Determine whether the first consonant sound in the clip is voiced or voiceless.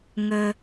voiced